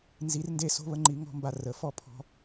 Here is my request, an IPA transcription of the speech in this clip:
n z i˧˥ r n d e˥ s o̤˥ β ə˥ ŋ͡ǃ i˧˥ ŋ ɔ̤˥ m b a˧ r ə˩˧ f ɔ˥ pʰ ɔ̤˧

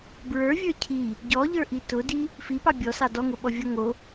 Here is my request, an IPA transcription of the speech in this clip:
b ɹ ə˞ vʲ ə˞ cʰ i | ɟ ɔ ʎ ə˞ ʔ i t ʊ d i | f i p ɑ bʲ ɔ s ɑ d ɔ ŋ ʊ ɓ ɔ vʲ ɔ ŋ o

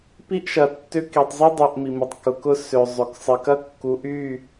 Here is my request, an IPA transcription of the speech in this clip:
p i˦ ʔ ʃ ɐ˨ tː ʏ˦ k i˨ tˤ zˤ y˦ dˤ ø˧ ʔ m i˨ m ɪ˨ tˤ k ʊ˨ k ʊ˦ s ø˨ zˤ ʏ˨ k sˤ ɪ˨ k ɐ˦ kː u˨˦ ʔ y˦˨

